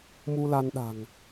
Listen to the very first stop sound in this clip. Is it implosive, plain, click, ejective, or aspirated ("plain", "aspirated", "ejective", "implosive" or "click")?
implosive